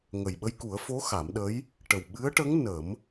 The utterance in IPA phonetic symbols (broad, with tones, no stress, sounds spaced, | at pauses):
ŋ ə˨˩ j ɓ ə˧ j k u˨˩˦ ə̯ f o˧˥ x a˨˩˦ m ɗ ə˧˥ j | ʈ ə˨˩ w ɓ ɨ˧˥ ə̯ ʈ ə˧˥ ŋ n ə˨˩˦ m